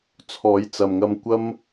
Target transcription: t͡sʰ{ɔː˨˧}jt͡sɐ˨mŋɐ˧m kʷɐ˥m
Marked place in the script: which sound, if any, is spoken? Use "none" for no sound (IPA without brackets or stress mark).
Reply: ɔː˨˧